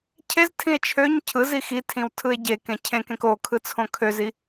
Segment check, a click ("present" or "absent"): absent